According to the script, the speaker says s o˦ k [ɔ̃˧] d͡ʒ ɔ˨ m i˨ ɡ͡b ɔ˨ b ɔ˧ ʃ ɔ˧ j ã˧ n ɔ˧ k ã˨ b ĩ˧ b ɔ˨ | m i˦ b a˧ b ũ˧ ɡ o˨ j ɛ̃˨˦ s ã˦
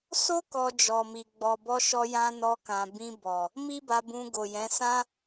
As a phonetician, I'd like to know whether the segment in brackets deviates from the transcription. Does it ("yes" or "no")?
yes